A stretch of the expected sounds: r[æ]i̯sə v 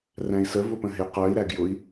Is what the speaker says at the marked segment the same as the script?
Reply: no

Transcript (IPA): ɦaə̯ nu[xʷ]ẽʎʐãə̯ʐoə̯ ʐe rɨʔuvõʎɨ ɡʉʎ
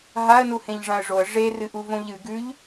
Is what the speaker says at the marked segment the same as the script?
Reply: no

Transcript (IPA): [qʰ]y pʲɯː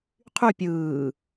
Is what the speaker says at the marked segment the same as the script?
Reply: yes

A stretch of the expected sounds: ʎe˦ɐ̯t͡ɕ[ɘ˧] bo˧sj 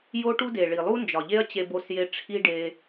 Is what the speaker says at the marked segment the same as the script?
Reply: no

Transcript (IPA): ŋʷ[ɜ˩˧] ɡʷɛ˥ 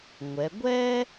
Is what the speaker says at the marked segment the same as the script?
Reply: no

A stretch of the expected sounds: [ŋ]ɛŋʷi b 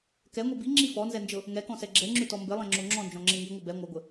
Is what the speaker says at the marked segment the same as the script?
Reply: no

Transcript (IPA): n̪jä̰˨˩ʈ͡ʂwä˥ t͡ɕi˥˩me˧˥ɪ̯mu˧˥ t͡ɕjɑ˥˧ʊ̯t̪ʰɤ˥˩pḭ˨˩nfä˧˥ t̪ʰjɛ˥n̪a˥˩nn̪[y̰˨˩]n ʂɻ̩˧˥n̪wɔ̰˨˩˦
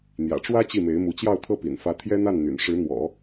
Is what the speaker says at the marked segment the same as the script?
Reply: yes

